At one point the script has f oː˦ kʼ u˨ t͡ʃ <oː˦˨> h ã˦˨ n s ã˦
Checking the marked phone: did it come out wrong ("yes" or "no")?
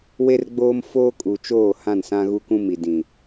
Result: no